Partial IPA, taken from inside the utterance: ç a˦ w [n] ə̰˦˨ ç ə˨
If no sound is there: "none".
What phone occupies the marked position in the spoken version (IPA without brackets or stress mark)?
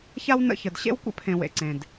n